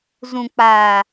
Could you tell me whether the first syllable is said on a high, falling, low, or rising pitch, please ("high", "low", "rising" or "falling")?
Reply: low